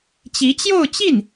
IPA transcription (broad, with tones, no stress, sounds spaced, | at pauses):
t͡ɕ i˧˥ t͡ɕ j o˥˧ ʊ̯ t͡ɕ i˥˩ n